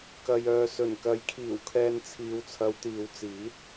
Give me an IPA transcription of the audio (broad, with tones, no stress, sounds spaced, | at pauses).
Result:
k ɐ˨ j œː˨ s ɵ˨˩ n k ɐ˨˥ j kʰ iː˨˩ w kʰ ɛː˨ n t͡sʰ iː˨ w t͡sʰ ɐ˨˧ w t̪ iː˨ w t͡s iː˨˥ t̚